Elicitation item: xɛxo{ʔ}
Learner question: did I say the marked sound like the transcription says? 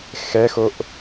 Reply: yes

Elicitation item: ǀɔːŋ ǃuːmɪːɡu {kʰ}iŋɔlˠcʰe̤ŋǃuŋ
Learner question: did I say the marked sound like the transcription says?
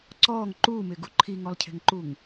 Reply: no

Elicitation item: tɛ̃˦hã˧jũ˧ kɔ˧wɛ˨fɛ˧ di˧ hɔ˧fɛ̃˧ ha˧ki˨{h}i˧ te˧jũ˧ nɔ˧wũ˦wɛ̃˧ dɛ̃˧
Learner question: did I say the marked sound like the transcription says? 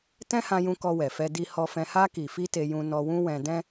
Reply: no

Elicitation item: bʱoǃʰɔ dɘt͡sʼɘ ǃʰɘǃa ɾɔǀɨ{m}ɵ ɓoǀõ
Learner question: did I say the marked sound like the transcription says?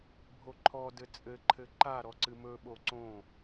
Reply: yes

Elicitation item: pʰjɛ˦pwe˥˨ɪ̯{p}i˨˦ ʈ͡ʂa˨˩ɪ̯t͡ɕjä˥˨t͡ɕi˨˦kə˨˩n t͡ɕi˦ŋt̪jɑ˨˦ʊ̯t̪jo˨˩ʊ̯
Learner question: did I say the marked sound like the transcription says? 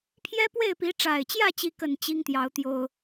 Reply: yes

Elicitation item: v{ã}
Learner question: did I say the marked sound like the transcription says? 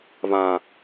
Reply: yes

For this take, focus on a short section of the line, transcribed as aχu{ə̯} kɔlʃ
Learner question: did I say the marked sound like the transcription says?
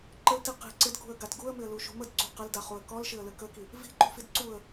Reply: yes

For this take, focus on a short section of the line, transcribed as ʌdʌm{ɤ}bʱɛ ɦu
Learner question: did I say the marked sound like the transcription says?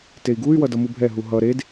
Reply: no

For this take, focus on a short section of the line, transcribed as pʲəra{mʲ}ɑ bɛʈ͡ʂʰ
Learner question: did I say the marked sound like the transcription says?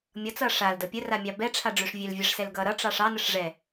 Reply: yes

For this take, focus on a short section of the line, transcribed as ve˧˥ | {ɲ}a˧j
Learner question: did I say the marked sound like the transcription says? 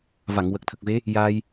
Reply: no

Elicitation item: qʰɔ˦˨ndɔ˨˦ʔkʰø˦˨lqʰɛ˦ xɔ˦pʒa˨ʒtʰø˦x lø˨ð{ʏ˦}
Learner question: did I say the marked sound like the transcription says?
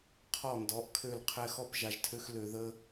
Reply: no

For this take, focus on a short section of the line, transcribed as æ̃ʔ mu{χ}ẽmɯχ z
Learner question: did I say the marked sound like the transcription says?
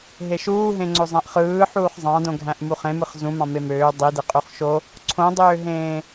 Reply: yes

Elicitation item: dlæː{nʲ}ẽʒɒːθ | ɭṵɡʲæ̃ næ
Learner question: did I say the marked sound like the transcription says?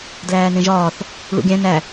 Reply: no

